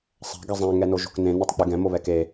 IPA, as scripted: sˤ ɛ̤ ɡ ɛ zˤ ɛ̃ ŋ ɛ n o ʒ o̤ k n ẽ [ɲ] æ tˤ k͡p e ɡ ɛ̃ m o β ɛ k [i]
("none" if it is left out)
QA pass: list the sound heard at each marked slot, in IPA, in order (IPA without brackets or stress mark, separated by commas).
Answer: n, e